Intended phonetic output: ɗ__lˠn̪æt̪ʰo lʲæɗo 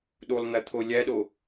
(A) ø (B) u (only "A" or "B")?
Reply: B